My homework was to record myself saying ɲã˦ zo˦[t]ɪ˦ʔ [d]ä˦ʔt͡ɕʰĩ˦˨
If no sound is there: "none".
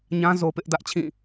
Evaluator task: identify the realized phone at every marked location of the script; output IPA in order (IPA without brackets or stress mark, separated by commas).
p, d